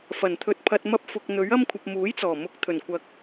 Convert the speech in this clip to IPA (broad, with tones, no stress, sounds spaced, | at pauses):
f ɐ˨˩ n t̪ʰ ɵ˨ t̚ pʰ ɐ˨ t̚ m ɐ˧ p̚ f ʊ˧ k̚ n̪ ɵ˨˥ ɥ ɐ˥ m kʷʰ ɐ˨ p̚ m uː˨˥ j t͡s ɔː˨˩ m ʊ˨˥ k̚ t̪ʰ ɵ˨˩ n kʷ ɐ˨˥ k̚